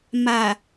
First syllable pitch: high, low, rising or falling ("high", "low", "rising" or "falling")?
low